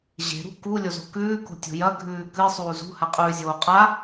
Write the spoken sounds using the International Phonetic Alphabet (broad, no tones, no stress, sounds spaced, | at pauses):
ʑ e̤ ɾ ṳ k u lʲ o z o̤ k ʉː k o̤ tʲ o̤ j ɐ ɡʱ ʉː k ɨ sˤ uː z ṳ h a qʼ ʉː zʲ oː qʼ a